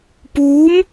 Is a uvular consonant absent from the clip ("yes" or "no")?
yes